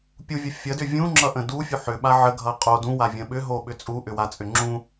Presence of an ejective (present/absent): present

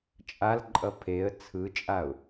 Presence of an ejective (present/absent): present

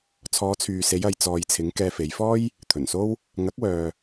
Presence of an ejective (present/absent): absent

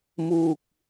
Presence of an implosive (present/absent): absent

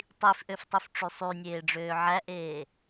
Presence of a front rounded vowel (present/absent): present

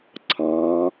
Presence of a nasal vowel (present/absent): present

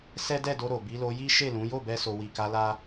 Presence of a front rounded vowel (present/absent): absent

